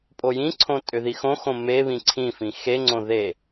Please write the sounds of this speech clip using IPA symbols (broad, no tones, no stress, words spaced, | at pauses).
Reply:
pʼojĩǀʰõ tʼʏðixõxõ meβĩ ǀʰĩfĩ xeŋ͡ǀõ ðe